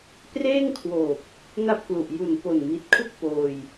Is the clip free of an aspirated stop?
no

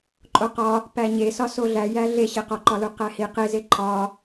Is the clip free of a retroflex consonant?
yes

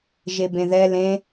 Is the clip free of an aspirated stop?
yes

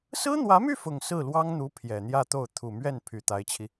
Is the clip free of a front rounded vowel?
no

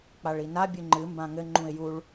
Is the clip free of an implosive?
yes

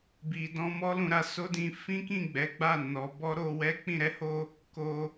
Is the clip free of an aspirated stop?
yes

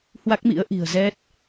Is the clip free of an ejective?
yes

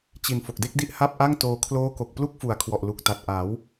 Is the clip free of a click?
yes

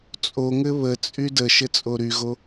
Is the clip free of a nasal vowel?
yes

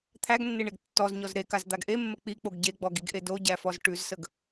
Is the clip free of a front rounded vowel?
yes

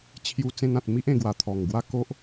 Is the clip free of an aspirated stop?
no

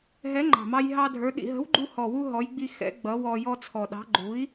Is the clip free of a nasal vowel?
yes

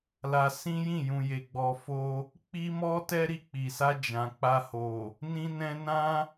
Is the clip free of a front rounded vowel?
yes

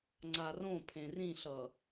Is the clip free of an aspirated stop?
no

